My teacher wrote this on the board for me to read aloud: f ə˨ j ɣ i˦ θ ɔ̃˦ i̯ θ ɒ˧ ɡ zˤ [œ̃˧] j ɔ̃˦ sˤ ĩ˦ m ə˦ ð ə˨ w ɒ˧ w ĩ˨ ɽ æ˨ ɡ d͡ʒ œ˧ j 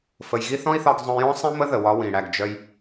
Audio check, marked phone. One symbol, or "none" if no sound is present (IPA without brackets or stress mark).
œ̃˧